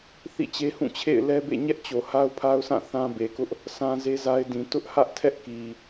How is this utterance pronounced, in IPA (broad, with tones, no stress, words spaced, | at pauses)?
θḭ˦˨t͡ɕe˦hũ˦˨t͡ɕʰḛ˦˨ɪ̯ lɛ˦bḛ˦˨ɲɛ˦ʔt͡ɕo˨ ha˦ʊ̯pʰa˦ʊ̯sʰã˦˨ θã˦ be˨kʊ˦ʔ | sʰã˦ze˦za˦ɪ̯dĩ˨ tʊ˦ʔhä˦ʔtʰɛ˦ʔki˨